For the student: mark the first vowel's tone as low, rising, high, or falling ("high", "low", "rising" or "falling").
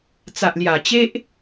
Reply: low